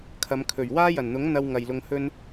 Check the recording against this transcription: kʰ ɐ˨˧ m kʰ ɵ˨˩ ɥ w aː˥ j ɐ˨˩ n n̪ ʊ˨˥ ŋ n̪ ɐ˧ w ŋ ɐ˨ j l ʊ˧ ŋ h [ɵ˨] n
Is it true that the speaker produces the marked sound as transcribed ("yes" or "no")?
no